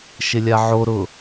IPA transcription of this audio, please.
ʃ ɪ lʲ a ʕ o ɾ ʊ

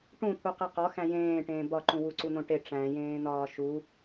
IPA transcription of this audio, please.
ʈ ũ t̪ʰ u q e q ɒ x æ̃ j ẽː ʈ ẽː b ɒ ǃ ũ w u ǀ u n̪ õ ʈ e ʈ͡ʂ æ̃ j ẽː n̪ ɒː ʃ u

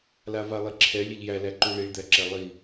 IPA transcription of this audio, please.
l a v a lˠ i ǁʰ ɛ lʲ ɛ ʎ j æ l æ ǃ u ɭ i ɭ d̪ æ ǁ ɛ lˠ i

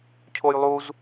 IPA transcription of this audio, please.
cʰ o j lˠ u z

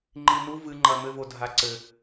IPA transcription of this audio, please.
ŋ͡ǃ i n u v ɨ ŋ͡ǃ ɐ m ɘ v o dʱ a ǀ ɘ

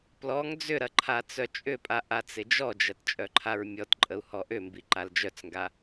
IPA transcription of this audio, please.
p l ɔ ŋ d͡z ʏ ɾ ɐ ǃʰ a t͡s œ t͡ʃʼ ʏ pʼ a ʔ a t͡s ɪ d͡ʒ ɔ d͡ʒ ɐ t t͡ʃʼ œ ǃʰ a ɹ mʲ ɔ t ǃʼ ə u̯ h ɔ ʔ ʏ m b i ǃ a l d͡ʒ œ t͡s ŋ ɡ a

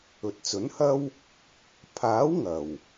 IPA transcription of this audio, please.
ɵ˨ t̚ t͡s ɵ˨˥ n h ɐ˥ w | pʰ aː˨˥ w ŋ ɐ˨˩ w

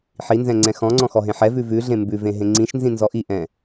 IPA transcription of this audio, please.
ħ i n z ɛ̃ ŋ͡ǀ ɛ̃ x ɔ̃ ŋ͡ǀ ɔ̃ x ɔ ɦ ẽ ħ ɛ v ʉ v ʉ ɮ ẽ m b ʉ v ẽ ɦ ẽ ŋ͡ǀ ĩ ʃ n z ĩ n z ɔ ʔ i ʔ ɛ̃

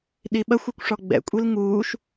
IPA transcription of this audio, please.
ɗ i ɓ ɐ xʷ u kʷ ʂ ɔ ɡ͡b ɛ̰ kʷʼ i l ŋ uː ʃ

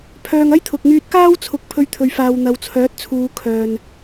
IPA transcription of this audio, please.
pʰ œː˨ ŋ ɐ˥ j t̪ʰ ʊ˨ k̚ ŋ yː˧ t̚ k aː˥ w t͡sʰ ʊ˨ k̚ pʰ ɵ˧ ɥ t̪ʰ ɵ˨ ɥ f aː˨ w n̪ ɐ˨ w t͡sʰ œː˨˥ t̚ t͡sʰ uː˨˧ kʰ œː˨ n

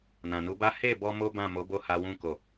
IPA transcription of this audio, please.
n ã˨ n u˨˦ b a˦ h e˦˨ b ɔ˧ m o˦ b ã˦˨ m o˨˦ b o˦˨ h a˧ w ũ˦ k o˦˨

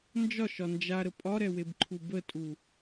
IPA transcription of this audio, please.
n d͡ʒ ɒ ʃ ɒ n d͡ʒ a ɾ ə pʼ ɒ ɾ ɛ w e b ǃʰ u b ə tʼ u

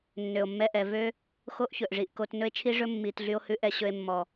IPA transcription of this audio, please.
nː ø˨ o̯ mː ɛ˧ ʔ ɛ˨ v ø˦ | x o˦ ʔ ç ɵ˨ ʔ ʐ i˨ ʔ k o˧ t n ɵ˧ e̯ t͡ʃʰ i˧ ʐ ɵ˧ mː i˨ t ɮ y˦ o̯ h ʉ˦ ʔ ɛ˦ ɕ ɵ˦ e̯ mː ɔ˨

